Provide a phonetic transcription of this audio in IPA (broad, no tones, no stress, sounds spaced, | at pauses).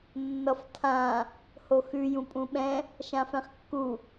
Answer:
nː ʌ f tʰ ã | h o x ʉ j ũ pʼ ũ ɓ ɛ̃ | ʃ ã f ɛ̃ χ kː u